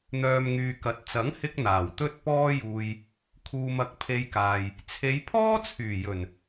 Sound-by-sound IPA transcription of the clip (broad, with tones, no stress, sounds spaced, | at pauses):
n̪ œː˨ m ŋ yː˨ k ɐ˨˥ t̚ t͡s ɐ˨˥ ŋ h ɪ˧ k̚ n̪ aː˨˩ w t̪ ɵ˥ t̚ p ɔː˥ j uː˧ j | kʰ uː˨ m ɐ˨ k̚ pʰ e˧ j k aː˨ j | t͡sʰ e˨˧ j pʰ ɔː˥ t͡sʰ yː˨˩ j ɵ˨˩ n